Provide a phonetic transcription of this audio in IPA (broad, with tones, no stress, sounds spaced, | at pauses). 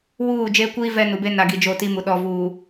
w uː˦˨ d͡ʒ eː˦ kʷ iː˦ v ɛ˦ n u˨ b e˦ n a˨ ɡ i˨ d͡ʒ o˦˨ t i˦ m u˨ ɗ ɔ˨ v uː˨